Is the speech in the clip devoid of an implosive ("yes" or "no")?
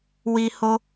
yes